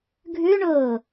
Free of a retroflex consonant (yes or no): no